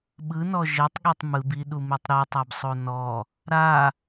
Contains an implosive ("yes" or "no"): yes